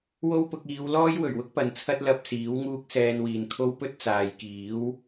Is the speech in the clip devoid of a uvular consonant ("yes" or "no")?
yes